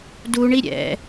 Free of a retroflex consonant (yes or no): no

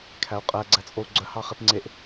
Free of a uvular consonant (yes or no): no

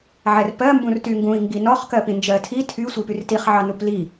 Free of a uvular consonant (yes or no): no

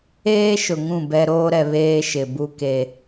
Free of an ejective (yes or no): yes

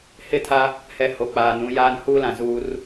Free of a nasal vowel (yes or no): no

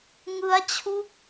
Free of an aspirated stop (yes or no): no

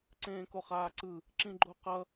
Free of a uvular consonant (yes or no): no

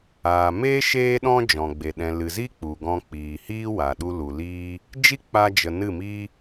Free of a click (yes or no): yes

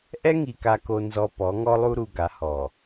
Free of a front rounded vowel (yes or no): yes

